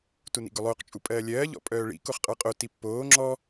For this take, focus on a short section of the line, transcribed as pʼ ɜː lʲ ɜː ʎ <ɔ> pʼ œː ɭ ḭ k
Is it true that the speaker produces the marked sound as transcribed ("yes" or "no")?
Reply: no